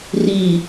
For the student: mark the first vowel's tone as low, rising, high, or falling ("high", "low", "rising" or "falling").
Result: low